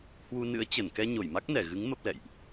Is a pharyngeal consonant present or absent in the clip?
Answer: absent